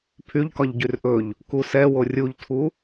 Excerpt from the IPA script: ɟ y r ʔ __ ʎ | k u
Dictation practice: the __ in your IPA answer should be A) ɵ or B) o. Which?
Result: A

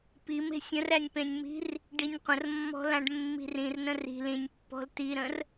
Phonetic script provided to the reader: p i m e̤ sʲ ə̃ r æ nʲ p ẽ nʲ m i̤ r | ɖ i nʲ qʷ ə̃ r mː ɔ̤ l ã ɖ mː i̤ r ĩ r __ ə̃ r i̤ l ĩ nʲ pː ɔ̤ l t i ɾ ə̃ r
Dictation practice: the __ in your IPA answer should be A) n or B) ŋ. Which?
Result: A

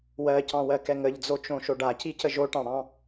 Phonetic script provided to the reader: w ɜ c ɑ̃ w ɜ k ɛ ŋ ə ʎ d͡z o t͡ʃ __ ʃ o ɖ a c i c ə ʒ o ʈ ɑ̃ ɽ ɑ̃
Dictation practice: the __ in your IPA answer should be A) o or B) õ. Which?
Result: B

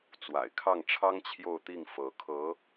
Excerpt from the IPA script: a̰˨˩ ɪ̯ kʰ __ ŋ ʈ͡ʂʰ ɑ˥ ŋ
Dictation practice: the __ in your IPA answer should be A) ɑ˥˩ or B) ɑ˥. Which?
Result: A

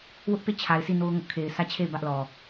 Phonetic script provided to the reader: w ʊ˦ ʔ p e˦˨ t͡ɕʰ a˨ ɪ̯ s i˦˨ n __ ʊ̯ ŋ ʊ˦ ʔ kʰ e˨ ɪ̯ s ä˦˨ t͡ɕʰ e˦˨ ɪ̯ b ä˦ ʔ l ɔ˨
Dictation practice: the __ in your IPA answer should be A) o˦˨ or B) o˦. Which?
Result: B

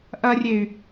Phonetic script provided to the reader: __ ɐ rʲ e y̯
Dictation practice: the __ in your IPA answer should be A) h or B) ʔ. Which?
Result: B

